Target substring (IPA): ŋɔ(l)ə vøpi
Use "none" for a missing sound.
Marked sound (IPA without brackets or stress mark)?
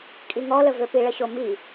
l